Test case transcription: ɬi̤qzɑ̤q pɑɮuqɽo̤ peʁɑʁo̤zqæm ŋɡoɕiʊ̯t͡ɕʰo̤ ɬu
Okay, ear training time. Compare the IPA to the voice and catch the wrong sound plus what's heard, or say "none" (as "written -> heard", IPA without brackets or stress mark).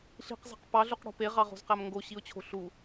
none